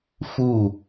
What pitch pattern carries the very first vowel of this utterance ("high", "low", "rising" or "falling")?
falling